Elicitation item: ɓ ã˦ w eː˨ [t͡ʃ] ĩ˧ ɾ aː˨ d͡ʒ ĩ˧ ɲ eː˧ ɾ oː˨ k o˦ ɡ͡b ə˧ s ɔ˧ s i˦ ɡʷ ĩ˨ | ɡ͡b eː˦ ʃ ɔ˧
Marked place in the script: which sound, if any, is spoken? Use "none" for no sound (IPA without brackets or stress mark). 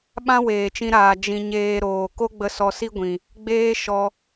t͡ʃ